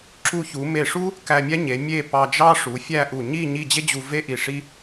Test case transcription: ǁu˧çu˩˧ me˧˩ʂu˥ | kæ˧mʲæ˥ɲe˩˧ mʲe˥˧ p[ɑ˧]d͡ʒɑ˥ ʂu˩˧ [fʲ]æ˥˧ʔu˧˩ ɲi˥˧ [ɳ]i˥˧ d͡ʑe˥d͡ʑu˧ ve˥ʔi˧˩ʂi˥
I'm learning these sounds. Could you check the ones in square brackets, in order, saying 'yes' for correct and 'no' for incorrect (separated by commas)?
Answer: yes, yes, no